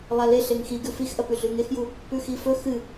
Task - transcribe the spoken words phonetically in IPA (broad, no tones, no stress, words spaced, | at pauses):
lˠale ɬeŋxiɡʉ fixʔɐpʉ ɮʉŋexju | pʉxifɵ xɨ